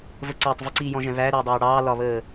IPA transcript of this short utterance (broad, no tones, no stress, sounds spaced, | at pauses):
v ə ǀ æ tˤ v ɪ ǀ iː j ɔ̃ ʒ ɛ̃ β æ ɾ ʊː dˤ ɑː ɽ ɑː l ɒ β əː